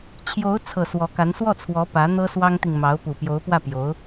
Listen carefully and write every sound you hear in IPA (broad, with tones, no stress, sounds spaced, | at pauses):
t͡ɕʰ j o˧˥ ʊ̯ t͡sʰ ɤ˨˩ s w ɔ˧˥ k a˧˥ n s w ɔ˥˩ t͡sʰ w ɔ˧˥ p ä˧˥ n̪ ɤ˥ s w ɑ˥ ŋ t̪ i˨ ŋ m ɑ˧˥ ʊ̯ p u˨˩ p j o˧˥ ʊ̯ p w ä˥˩ p j o˧˥ ʊ̯